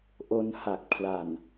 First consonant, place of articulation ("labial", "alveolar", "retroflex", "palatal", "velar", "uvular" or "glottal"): glottal